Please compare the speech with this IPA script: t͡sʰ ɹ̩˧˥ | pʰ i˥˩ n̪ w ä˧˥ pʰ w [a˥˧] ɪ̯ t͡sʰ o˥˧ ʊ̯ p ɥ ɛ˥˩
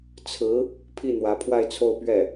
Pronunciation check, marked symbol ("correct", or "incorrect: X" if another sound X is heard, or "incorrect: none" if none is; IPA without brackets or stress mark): correct